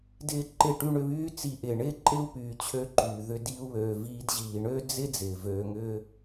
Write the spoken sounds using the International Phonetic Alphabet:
d ɪː˦ ǃ ɪ˦˨ ʈ y˦ ɳ ʏ˧ β yː˦ t͡s i˧ ʔ ɪː˨ ɳ ɪː˦ ǃʼ ɪ˦ u̯ p yː˨ t͡ɕʰ ø˦ ǃ yː˨ ð ʏ˧ d i˧ u̯ β øː˨ v iː˧ d ʑ iː˨ ɳ ø˦ d͡z ɪ˦ d͡z ɪː˨ v øː˧ ŋ ʏː˦

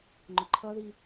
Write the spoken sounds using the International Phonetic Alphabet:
ŋ͡ǃ ʊ ǃʰ ʌ ð i

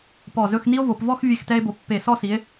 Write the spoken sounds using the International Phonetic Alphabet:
p ɔ˧˩ z ɵ˥˧ x n i˥ o̯ v o˩˧ p v ɔ˥˧ x vʲ e˧˩ x t ɛ˧ e̯ b o˩˧ pː e˧˩ s ɔ˥˧ s i˩˧ e̯

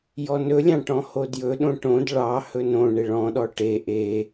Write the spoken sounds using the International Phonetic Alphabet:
j ɔ n ɵ lʲ ɑ̃ ʈ ɔ̃ h o d j ɵ ɗ õ ʈ õ d ɭ ɑ h ɵ n õ ɳ e ɭ ɔ̃ ɗ ɔ ʈ e ʔ e

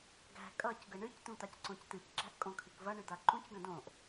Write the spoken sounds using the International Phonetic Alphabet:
ɡ æ̤ kʼ ʌ c ɡ ə ɳ ɨ c t̪ ũ t̪ a c ǀ õ c t̪ ɨ c ǁ æ̤ ʔ kʼ õ kʰ ɨ k v ɐ ɳ ɨ d̪ a ǃ ũ c ɡ ɐ̃ d õ ʔ

